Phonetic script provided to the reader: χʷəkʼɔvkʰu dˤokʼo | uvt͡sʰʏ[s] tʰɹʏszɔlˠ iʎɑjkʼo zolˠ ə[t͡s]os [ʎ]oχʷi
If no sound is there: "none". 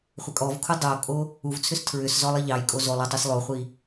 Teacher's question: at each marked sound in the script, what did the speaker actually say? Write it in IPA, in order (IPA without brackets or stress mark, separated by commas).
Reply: s, tˤ, lˠ